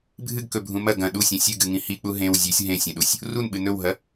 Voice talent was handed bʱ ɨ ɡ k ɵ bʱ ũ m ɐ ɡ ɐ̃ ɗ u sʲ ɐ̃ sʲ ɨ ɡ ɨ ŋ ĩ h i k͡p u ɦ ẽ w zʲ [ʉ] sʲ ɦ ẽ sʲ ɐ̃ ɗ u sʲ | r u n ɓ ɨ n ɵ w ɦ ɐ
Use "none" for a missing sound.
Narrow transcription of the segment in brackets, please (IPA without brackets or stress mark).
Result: ʉ